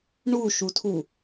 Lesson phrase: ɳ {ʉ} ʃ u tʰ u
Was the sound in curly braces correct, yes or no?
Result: no